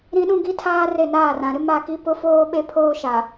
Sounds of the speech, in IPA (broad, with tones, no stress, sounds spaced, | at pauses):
ɾ ĩ˦ ɗ ũ˦ ɡ i˦ tʰ aː˦ r e˦˨ n aː˦˨ r ã˨ ɾ ɪ˦ m a˦˨ k i˦ p ʊ˦ f oː˦ ɓ e˦ pʰ oː˦ ʃ a˨